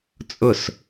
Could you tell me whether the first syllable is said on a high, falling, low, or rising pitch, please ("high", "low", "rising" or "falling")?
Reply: falling